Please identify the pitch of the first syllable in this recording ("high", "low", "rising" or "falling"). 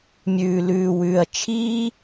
low